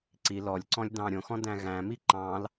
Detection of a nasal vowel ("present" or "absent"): present